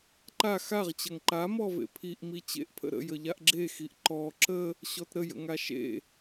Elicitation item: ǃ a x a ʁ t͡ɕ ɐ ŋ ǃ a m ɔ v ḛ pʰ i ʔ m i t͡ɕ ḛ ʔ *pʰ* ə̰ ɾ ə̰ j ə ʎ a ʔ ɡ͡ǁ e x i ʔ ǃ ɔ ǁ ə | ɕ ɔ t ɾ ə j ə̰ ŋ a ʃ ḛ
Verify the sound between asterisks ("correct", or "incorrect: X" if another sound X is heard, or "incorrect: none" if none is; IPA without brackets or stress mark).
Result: correct